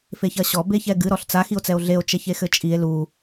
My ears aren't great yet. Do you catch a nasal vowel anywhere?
no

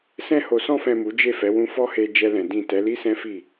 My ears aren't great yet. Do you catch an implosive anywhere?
no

